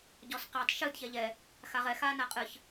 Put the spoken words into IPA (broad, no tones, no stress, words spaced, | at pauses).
ɟɔsqetˤ ʃɨd çɛʎɛ | xaʁɛ xaːnaqʼɨç